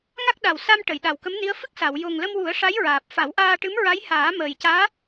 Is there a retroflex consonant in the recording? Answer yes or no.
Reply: yes